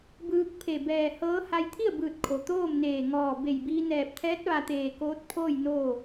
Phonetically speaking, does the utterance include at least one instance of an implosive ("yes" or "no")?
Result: no